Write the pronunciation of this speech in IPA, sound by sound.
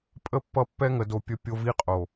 pʼ ə˦ pː ʌ˦˨ pː ɛ˦ ŋ ə˨ d o˨ pʲ ə˦ pʲ o˦ v i˦ qʼ o˨

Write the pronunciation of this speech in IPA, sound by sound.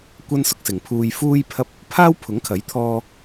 kʷ ɐ˥ n s ʊ˧ k̚ s ɪ˨ ŋ pʰ uː˧ j f uː˥ j pʰ ɐ˥ p̚ | pʰ aː˥ w pʰ ʊ˨˥ ŋ kʰ ɐ˨˥ j t̪ʰ ɔː˧

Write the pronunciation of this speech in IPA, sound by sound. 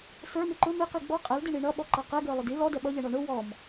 s ə˞ m ɪ ǃ ʊ m ɪ q i ɡ͡b ɔ qʼ ɛ l d i ɳ i ɳ ʌ ɓ ɔ ǃ ʌ q ɛ ɡ ə˞ lˠ ʊ d i l ɔ d ɛ ɓ ʌ ʎ ɛ ɳ ɔ ɳ ʊ w ɔ m

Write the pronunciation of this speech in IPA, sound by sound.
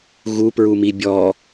ɣ u p ɹ u m i bʲ ɔ

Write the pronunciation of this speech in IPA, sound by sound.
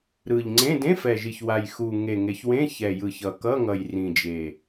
ɾ ɯ˨˩ ʎ ŋ͡ǀ ẽ˧˥˧ d ẽ˧˥˧ f ɛ˨˩ ʒ i˨˩ ç w a˨˩ j x u˨˩ ŋ e˨˩ ŋ e˨˩ ç w ẽ˧˥˧ ç ɛ˨˩ j ɯ˨˩ ç ʌ˨˩ k ʌ˧˥˧ ŋ ʌ˨˩ j r ĩ˨˩ d͡ʒ e˨˩

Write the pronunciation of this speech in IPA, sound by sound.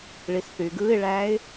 ɭ i s θ yː ɡ ɯː ɪ̯ ɭ æː ɪ̯

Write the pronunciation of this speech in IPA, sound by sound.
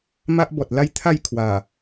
m a˦ ʔ b ɔ˨ t̚ l a˦ j t̪ʰ a˥˧ j kʰ w a˨˩

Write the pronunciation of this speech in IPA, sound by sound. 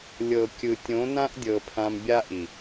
lʲ ɤ˨ kʲ ɯ˨ tʲ õ˨˦ n ã˦ ʔ dʲ ɤ˨ pʰ ã˧ m bʲ a˦ ʔ i˨

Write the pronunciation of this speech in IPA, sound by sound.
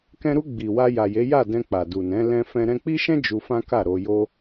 k ɛ̃˧ ɾ u˧ ɡ͡b i˨ w a˧ j a˨ j e˨˦ j a˦˨ d ɛ̃˧ k͡p a˨ d u˨ n ɛ̃˨˦ l ɛ̃˦ f ɛ̃˦ ɾ ɛ̃˧ k͡p i˦ ʃ ɛ̃˦ d͡ʒ u˧ f ã˦ k a˦˨ ɾ o˧ j o˦

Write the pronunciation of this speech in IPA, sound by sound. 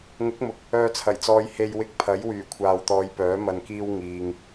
ŋ ʊ˨˥ k̚ m ʊ˨ k̚ | œː˧ t͡sʰ ɐ˨˩ j t͡s ɔː˧ j h e˧ j w ɪ˧ k̚ pʰ ɐ˨˥ j w yː˨˩ kʷʰ aː˨ w t̪ ɔː˨˧ j p œː˨˥ m ɐ˧ n k iː˥ w ŋ iː˨ ŋ

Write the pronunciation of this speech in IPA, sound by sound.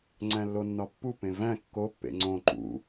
ŋ͡ǀ æ̃ lː o nː ɒ pː u p ẽ v æ̃ kː o pː ḛ ŋ͡ǀ õ ǃ ṵ

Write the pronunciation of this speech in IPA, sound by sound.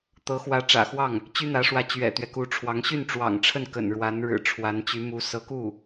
t̪ ɤ˧˥ x w ä˧˥ ʈ͡ʂ ä̰˨˩ x w ɑ˥˩ ŋ | t͡ɕ y˥ n̪ ä˧˥ ʂ w ä˧˥ t͡ɕ ɥ ɛ̰˨˩ t̪ ɥ ɛ˦ k u˧˥ ʈ͡ʂʰ w ɑ˧˥ ŋ ɕ y˥˩ n ʈ͡ʂ w ɑ̰˨˩ ŋ ʈ͡ʂʰ ə˥˩ n k ə̰˨˩ n ɻ w a˧˥ n ɻ ɻ̩˨˩ ʈ͡ʂʰ w a˧˥ n t͡ɕ y˧˥ m u˧˥ s ɤ˧˥ k u˥˩

